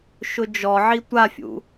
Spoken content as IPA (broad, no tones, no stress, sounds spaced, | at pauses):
ʃ ʊ d͡ʒ ɔ ʕ i tʷ a fʲ ṵ